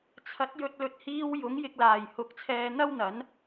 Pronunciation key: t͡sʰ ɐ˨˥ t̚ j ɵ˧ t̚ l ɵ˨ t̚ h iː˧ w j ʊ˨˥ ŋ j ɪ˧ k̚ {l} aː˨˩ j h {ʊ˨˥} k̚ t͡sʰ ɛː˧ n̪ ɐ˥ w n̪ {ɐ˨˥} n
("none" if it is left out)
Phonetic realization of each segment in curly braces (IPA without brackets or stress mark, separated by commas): l, ʊ˨, ɐ˨˥